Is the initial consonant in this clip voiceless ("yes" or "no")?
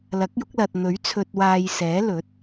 no